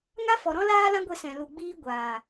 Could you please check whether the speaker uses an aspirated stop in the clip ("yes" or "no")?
no